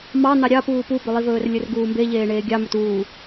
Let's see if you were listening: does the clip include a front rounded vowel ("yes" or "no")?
no